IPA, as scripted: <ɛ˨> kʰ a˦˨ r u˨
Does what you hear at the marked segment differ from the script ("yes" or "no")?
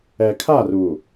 no